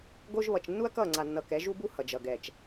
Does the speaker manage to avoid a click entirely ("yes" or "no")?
no